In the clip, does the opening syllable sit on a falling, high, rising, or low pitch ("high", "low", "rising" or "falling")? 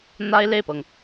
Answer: high